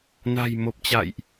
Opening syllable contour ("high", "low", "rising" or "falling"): low